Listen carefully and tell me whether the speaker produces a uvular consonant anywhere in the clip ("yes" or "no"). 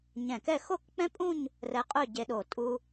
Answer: yes